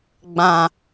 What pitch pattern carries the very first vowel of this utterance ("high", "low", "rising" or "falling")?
low